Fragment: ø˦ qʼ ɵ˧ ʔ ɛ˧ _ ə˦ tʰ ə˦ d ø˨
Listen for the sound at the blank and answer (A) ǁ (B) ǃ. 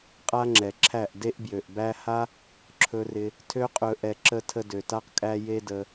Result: A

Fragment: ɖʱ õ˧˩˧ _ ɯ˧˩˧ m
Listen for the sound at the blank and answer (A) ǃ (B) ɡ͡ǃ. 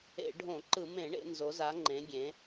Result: A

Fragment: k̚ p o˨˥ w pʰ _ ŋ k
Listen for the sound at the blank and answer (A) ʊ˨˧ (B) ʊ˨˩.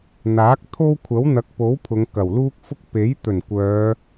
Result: A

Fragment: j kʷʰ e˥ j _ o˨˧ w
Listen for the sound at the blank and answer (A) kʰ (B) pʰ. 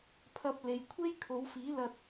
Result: A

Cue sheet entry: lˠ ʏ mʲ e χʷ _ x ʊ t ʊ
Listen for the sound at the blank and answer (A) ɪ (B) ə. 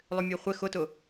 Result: A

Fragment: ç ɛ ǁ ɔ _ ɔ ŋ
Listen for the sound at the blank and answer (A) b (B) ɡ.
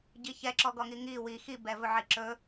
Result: B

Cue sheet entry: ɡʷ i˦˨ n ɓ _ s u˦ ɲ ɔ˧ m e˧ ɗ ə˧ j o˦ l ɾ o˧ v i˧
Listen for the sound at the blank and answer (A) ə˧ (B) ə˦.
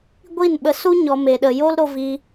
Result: A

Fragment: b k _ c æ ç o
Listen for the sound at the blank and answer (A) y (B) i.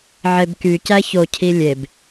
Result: A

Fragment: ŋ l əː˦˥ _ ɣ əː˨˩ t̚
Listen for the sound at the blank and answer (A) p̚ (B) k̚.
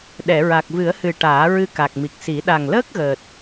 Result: B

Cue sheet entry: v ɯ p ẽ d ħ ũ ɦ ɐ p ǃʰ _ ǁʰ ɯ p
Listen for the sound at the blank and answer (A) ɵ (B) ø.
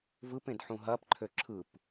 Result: B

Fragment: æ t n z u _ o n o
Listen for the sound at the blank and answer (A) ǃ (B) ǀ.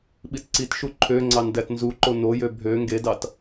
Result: A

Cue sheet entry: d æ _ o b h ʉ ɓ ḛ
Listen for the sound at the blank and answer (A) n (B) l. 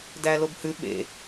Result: B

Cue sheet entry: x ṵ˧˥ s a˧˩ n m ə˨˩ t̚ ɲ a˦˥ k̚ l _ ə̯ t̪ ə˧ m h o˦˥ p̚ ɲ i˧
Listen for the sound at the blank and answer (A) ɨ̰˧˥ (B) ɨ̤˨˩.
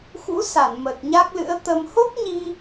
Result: A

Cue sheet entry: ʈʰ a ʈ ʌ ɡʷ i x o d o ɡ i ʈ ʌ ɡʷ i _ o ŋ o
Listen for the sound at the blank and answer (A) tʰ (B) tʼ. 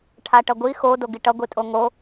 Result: B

